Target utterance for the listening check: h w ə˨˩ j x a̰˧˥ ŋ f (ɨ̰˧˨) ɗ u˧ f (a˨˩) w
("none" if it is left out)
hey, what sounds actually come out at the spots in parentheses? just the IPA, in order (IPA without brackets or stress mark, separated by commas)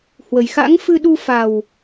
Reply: ɨ˧, a˨˩